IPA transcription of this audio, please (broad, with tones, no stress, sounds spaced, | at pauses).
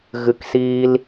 ɣ ɨ˦˨ k s iː˦ l